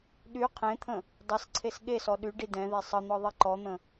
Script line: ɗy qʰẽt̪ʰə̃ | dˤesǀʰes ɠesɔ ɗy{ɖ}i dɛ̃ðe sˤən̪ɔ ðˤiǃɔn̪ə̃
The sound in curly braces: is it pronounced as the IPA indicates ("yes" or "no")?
yes